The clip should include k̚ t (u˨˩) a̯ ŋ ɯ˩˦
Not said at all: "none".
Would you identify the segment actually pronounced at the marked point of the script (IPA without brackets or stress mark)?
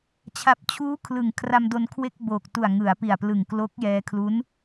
u˨˩